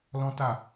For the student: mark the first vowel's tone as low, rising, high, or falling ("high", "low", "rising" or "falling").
high